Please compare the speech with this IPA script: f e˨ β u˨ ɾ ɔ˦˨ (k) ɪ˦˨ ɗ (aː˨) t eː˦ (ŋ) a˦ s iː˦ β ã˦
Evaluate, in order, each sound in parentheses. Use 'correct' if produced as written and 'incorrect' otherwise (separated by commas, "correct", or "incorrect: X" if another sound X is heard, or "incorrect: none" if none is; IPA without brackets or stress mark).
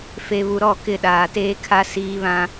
correct, correct, incorrect: kʰ